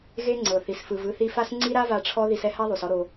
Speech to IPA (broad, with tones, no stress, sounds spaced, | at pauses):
ɣ e˦ ŋ͡ǀ ɤ˨ θ i˨ s f ɯ˨ v ɯ˧ θ i˧ f a˦ s ŋ͡ǀ i˦ ɾ a˦ v a˧ ʈ͡ʂʰ ɔ˦ ð i˧ s ɛ˦ h a˦ ðˤ u˨ s ɔ˦ ɾ o˧